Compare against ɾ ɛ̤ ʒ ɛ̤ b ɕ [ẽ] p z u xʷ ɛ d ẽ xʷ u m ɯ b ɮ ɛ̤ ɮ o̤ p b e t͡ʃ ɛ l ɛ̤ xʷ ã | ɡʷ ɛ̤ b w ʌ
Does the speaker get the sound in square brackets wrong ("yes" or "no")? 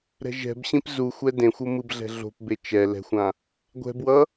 yes